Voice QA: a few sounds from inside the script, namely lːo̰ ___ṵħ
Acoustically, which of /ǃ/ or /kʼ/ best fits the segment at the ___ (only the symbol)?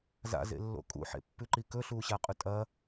kʼ